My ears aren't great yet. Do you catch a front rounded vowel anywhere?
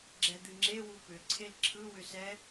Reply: yes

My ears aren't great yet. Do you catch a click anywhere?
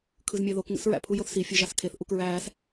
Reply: no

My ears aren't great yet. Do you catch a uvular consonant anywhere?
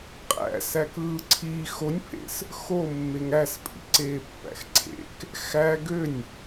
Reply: yes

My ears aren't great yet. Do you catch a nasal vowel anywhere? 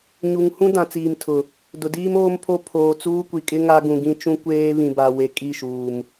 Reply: yes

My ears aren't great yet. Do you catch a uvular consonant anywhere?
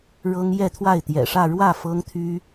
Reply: no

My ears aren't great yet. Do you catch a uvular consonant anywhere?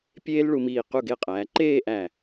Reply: yes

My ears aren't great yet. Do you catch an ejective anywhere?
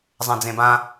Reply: no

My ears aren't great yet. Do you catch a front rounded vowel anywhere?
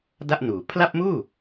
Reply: no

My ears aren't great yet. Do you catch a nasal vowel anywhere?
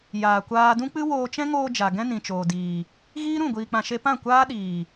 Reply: yes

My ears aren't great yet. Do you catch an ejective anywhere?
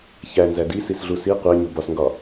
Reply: no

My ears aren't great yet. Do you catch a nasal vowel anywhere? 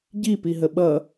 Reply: no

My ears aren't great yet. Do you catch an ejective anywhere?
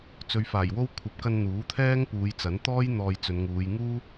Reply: no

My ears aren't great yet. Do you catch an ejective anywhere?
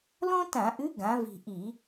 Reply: no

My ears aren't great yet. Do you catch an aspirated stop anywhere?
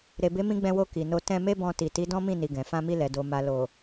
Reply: no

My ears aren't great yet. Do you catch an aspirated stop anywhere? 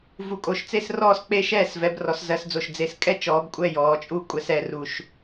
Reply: no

